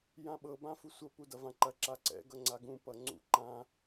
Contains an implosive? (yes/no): yes